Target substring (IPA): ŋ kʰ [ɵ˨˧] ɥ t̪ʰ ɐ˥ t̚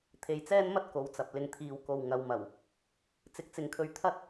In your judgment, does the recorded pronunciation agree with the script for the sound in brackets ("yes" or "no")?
no